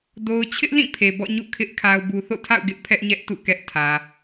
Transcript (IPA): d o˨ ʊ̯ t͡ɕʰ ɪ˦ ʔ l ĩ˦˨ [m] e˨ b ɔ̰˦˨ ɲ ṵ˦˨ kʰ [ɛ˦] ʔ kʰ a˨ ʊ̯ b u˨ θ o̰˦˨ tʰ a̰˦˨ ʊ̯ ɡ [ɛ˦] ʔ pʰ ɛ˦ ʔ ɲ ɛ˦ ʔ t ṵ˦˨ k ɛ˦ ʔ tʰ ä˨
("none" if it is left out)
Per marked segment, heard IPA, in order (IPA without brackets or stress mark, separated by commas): pʰ, ɪ˦, ɪ˦